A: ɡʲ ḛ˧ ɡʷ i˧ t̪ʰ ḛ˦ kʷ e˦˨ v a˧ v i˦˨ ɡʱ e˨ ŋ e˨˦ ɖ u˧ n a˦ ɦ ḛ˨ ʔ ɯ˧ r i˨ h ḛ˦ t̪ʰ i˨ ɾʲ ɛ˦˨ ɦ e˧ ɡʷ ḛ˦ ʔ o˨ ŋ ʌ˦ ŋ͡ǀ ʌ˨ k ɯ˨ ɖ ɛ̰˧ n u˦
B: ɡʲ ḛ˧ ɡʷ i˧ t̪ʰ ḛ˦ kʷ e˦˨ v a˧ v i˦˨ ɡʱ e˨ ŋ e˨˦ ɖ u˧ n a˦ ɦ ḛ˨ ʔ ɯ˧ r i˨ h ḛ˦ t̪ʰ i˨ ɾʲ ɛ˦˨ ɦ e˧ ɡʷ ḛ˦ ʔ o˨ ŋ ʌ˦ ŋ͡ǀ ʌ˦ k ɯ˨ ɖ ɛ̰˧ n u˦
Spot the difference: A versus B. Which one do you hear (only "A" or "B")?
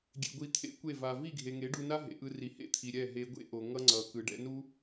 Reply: A